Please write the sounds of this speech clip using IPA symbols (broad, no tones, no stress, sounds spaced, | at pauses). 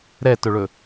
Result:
ɾ ɛ t ɵ ɭ ɵ